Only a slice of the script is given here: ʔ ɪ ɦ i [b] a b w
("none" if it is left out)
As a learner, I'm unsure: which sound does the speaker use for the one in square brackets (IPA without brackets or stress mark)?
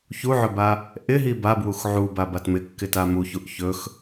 b